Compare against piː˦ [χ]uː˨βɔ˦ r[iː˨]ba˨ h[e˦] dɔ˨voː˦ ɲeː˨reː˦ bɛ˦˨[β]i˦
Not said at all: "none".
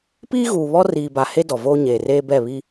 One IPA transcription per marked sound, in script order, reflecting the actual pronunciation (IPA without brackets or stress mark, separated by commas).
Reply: ɣ, iː˨, e˦, β